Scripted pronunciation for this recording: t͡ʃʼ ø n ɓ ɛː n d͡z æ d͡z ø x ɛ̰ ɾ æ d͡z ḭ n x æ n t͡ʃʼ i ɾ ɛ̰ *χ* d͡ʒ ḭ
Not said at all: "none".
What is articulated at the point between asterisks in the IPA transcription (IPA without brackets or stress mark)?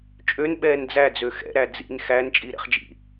χ